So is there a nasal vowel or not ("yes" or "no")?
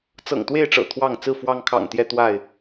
no